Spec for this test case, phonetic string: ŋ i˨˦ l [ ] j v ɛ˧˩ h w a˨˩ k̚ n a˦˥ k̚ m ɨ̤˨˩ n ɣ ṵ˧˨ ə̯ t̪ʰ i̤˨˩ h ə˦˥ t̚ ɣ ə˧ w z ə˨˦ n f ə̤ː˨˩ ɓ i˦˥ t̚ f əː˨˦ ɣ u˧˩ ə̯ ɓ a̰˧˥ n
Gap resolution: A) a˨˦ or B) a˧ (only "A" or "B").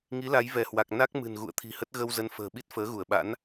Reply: A